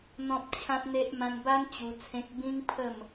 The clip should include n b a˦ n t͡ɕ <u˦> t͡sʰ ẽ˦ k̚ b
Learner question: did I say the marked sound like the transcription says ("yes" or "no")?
no